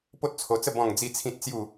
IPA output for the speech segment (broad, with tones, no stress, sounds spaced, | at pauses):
p o˦ t̚ t͡sʰ o˧ t͡s ə˥˧ b ɔ̃˥˧ ŋ d͡z i˥˧ t͡sʰ ĩ˦ t̚ t͡s j u˥˧